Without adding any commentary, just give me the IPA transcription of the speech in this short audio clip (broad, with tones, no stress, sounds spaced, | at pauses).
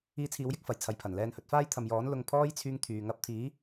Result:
iː˧ t͡sʰ iː˨˧ w j ɪ˥ k̚ f ɐ˨˩ j t͡sʰ ɐ˨˧ j pʰ ɐ˨˩ n l ɛː˧ n h ɵ˨˥ t̚ f aː˥ j t̪ʰ ɐ˨ m j ɔː˨˥ n l ʊ˧ ŋ pʰ ɔː˥ j t͡sʰ yː˥ ŋ t̪ʰ yː˨ ŋ ɐ˨˥ p̚ t̪ʰ iː˨˥